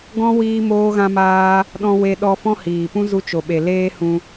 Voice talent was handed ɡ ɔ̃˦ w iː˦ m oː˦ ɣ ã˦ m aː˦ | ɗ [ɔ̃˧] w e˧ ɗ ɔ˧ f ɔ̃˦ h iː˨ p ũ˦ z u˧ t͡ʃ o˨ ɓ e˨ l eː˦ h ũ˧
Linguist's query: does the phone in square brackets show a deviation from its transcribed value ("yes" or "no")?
no